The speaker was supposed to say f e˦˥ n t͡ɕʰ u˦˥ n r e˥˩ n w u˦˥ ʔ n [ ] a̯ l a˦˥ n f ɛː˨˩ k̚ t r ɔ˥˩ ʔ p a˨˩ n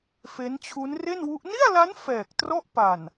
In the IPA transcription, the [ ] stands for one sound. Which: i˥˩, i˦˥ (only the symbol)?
i˥˩